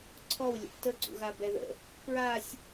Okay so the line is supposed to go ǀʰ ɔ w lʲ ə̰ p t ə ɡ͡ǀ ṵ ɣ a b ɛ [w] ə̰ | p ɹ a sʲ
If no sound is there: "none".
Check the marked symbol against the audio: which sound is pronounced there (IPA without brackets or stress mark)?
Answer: ð